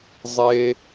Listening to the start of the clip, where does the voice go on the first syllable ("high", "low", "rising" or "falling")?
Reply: high